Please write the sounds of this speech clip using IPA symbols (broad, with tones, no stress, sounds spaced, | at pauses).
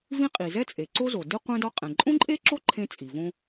v ĩ˥ qʼ i˩ z ɛ˥ t͡sʼ e˩ ǀ o˥ z o˩ d i˥ qʷ ɛ̃˥ d ɒ˥ qʼ ɛ̃˩ ǃʼ õ˥ ǃʼ e˥ ǁ o˥ ǃʰ ẽ˥ t͡sʼ i˩ v õ˥